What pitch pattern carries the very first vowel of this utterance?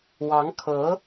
rising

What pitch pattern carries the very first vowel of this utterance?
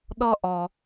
high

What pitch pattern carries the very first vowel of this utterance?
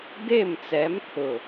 falling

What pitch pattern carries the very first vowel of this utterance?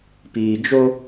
low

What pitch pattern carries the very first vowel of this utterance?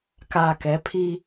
low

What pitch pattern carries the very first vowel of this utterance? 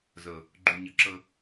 low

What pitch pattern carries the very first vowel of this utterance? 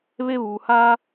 high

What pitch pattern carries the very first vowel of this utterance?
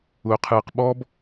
low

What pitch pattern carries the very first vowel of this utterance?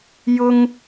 high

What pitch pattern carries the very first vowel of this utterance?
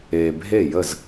low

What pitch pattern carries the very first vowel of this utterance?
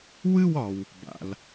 falling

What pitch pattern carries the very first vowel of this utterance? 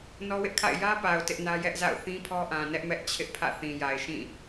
high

